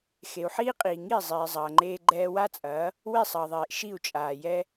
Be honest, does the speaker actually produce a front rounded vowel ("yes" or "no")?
no